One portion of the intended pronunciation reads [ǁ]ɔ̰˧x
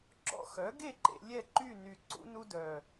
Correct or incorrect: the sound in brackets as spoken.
correct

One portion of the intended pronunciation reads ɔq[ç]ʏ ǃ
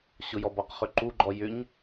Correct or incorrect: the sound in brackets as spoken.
incorrect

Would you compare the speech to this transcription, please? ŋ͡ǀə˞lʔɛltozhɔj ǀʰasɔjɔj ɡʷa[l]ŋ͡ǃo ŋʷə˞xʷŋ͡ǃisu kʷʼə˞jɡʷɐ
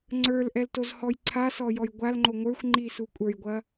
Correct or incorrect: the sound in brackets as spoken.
correct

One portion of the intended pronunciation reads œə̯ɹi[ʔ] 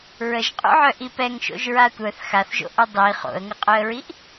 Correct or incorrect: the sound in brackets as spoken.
correct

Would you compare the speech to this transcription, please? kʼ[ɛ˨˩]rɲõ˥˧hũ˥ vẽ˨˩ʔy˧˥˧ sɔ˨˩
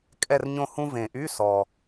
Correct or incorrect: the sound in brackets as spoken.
incorrect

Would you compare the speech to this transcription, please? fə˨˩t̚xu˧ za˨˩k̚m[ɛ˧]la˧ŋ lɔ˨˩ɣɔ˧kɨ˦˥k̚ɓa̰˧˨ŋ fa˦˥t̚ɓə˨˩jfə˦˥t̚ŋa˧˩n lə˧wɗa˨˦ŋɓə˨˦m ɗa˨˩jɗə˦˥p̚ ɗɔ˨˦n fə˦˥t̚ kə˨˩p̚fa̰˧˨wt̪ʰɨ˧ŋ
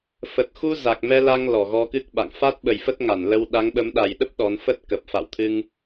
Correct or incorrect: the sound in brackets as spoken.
correct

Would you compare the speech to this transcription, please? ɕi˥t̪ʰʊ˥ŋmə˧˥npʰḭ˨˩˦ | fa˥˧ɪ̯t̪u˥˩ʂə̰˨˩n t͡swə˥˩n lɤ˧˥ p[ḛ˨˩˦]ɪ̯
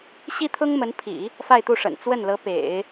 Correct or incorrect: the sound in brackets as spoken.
correct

